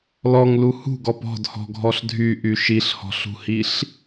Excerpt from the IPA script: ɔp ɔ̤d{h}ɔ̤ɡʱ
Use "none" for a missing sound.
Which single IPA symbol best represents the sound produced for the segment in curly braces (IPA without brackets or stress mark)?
h